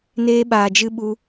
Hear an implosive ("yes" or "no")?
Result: yes